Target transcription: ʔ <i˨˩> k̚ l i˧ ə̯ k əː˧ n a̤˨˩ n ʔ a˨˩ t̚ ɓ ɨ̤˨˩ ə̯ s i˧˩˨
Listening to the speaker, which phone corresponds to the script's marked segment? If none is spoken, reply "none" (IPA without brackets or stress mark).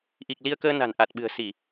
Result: i˨˩